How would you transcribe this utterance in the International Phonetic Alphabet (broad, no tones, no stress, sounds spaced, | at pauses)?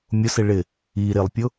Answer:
mʲ ʊ s ɪ ɭ ɪ | i ɾ ɪ lˠ pʲ ʊ